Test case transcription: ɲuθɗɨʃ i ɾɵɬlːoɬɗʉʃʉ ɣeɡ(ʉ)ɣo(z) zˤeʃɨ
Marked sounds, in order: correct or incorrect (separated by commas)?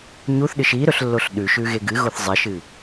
incorrect, incorrect